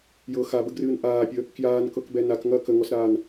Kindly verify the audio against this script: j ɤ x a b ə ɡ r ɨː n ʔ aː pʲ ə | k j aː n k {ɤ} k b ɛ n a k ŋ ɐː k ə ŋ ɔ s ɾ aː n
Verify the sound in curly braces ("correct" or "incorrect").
correct